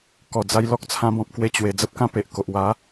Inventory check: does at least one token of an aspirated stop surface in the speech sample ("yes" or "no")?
yes